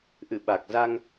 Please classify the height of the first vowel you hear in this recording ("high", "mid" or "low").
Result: high